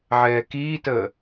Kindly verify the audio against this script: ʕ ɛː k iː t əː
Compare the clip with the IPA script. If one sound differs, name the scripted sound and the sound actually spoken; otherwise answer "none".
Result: none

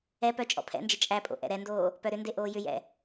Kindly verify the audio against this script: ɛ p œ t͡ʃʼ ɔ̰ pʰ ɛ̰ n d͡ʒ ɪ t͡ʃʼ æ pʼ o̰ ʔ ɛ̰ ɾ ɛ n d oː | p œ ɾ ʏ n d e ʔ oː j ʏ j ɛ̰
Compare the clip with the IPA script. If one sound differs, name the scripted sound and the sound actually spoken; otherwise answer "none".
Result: none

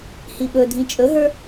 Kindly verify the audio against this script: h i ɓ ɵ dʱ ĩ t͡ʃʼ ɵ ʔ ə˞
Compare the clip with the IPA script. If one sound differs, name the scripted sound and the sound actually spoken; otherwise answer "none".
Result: ʔ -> ɦ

